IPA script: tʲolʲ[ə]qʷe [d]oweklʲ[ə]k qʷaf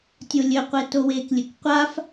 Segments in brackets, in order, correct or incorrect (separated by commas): incorrect, incorrect, incorrect